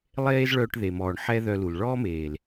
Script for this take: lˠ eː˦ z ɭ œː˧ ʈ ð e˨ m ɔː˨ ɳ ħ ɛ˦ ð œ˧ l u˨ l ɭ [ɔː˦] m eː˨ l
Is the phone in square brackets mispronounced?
no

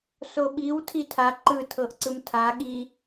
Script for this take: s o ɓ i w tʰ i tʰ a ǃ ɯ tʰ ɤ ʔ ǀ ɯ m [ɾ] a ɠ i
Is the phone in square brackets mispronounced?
yes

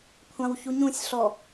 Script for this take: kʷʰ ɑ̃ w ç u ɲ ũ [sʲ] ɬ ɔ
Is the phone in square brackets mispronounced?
no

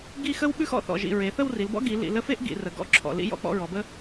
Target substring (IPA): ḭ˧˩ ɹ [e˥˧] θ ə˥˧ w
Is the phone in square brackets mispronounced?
yes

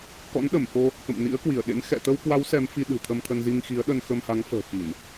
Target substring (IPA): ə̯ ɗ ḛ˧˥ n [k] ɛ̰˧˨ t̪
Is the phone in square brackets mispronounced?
yes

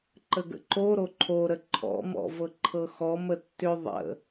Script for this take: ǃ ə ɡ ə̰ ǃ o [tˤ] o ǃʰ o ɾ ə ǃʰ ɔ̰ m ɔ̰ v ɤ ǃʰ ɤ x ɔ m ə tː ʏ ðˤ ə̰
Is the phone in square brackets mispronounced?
yes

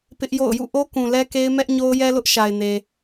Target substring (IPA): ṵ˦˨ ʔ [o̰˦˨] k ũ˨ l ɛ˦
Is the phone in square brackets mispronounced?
yes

